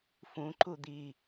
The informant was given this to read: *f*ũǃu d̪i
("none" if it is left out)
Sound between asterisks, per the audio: f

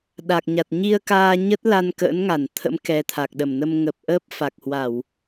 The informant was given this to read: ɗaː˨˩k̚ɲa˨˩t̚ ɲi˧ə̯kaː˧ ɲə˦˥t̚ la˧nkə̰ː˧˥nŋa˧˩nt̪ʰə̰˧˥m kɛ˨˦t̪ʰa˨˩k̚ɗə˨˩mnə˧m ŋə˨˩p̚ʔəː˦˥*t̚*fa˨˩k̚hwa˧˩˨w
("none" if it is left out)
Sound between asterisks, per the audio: p̚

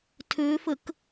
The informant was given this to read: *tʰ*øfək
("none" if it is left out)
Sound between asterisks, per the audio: tʰ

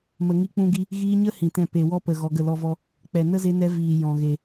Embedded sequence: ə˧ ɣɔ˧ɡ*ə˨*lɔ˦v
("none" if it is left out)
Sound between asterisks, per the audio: ə˦˨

